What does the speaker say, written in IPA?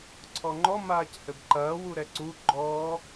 ǀʰ ɔ ŋ͡ǃ ɔ m aː c h ɘ b ǃ ɐː w u ɾ ɛ ǀ u ɡ͡ǃ ɔː

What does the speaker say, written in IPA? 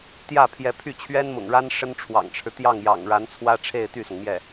t̪ j ä˥˩ pʰ j ɛ˧˥ pʰ y˥˩ t͡ɕʰ ɥ ɛ˥ n m ʊ̰˨˩ ŋ ɻ a˥ n ʂ ə˥ n ʈ͡ʂʰ w ɑ̰˨˩ ŋ ʈ͡ʂʰ ɻ̩˦ t̪ j ɑ˥˩ ŋ j ɑ̰˨˩ ŋ ɻ a˧˥ n t͡sʰ w ä˥ ʈ͡ʂʰ e˥˧ ɪ̯ t̪ y˥˩ s ʊ˩ ŋ m j ɛ˥˩

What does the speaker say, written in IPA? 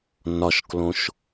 n ɒ ʃ k l õ ʃ

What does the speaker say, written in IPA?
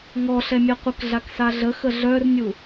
ŋ ɔ ɬ ɛ mʲ ɛ qʷ ə k ɮ a k s a ɮ ə x ə ɮ œ r nʲ u

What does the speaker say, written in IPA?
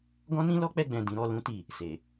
ɡ ɔ̃˦ n ĩ˦ l ɔ˦ k͡p ɛ˧ ɡ͡b ɛ̃˨ d ĩ˨˦ ɾ ɔ˧ l ũ˦ t i˦˨ | s e˨

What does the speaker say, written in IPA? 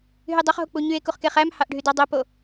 ɦ y dˤ o χ ɦ o k͡p u ɲ y e̯ k u χ k e χ æ m h ɑ ʔ ɖʱ y d ɑ dˤ o p o

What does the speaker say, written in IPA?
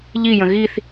ʎ i j ə̃ ɣ i θ

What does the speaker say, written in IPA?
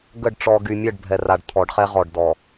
ɡ ə˦˨ ɖ ʈ͡ʂ ɔ˨ ɡ y˨ mʲ ə˦˨ ɖ bʱ ɛ˨ r a˨ ɖ t̪ʰ ɔ˨˦ ɖ χ ɛ˦ ʁ ɔ˨ ɖ d ɔ˨

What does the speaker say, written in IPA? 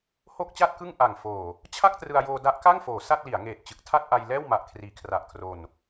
h o˥˩ k̚ t͡ɕ a˥˩ t̚ k ɯ˥˩ ŋ ʔ a˨˩ ŋ f oː˨˩ | t͡ɕʰ a˥˩ k̚ t r ɯ˧ a̯ j oː˧ d a˦˥ ʔ k a˥˩ ŋ f oː˩˦ s a˥˩ t̚ l i˩˦ a̯ ŋ eː˨˩ t̚ t͡ɕ ɯ˨˩ k̚ tʰ a˥˩ t̚ ʔ a˧ j l ɛː˥˩ w m a˨˩ ʔ kʰ r iː˩˦ kʰ r a˨˩ ʔ kʰ r o˧ n

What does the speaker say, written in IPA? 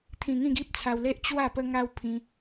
t̪ʰ ĩ˧ ŋ ĩ˥˧ ɡ i˦ p̚ t͡sʰ a˧ w l e˦ ʔ t͡ɕ w a˥˧ p ə˦ ŋ a˦ w pʰ ĩ˧

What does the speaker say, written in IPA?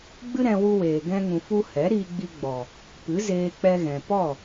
ɡ͡b ɨ˦ ɾ ɛ̃˧ w u˧ w eː˨ ɡ ɛ̃˧ ŋ ũ˨ f u˧ h ɛ˨˦ ɾ iː˧ ɡ͡b i˧ ɡ͡b ɔ˨ | p ɨ˨˦ z eː˧ k͡p ɛ˧ ɣ ɛ̃˨ p ɔ˦˨

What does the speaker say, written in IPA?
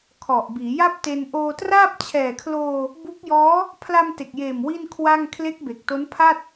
kʰ ɔ˨˩ ʔ b iː˩˦ j a˥˩ p̚ t e˧ n ʔ oː˧ t r aː˥˩ p̚ t͡ɕʰ ɛː˨˩ kʰ l oː˧ | b u˦˥ k̚ j ɔː˦˥ | pʰ l a˧ m t e˨˩ k̚ j eː˨˩ m w i˥˩ n kʰ w a˥˩ ŋ kʰ l e˦˥ k̚ b e˨˩ k̚ t o˦˥ n pʰ a˥˩ t̚

